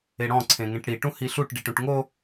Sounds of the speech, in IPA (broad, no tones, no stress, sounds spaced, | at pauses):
e ɽ ɔ̃ ǀʰ ẽ ŋ ẽ ʈ ɽ i ʈ ũ h i ɬ u ʈ ɖ i ʈ ũ ʈ ŋ o